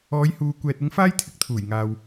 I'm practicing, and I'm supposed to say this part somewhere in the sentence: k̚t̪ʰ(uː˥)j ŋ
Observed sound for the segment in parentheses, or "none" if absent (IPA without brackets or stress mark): uː˨˩